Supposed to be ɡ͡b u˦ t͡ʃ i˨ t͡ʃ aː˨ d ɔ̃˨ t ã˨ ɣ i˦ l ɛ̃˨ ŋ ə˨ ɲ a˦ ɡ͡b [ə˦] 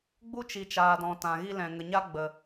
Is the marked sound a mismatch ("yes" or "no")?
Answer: yes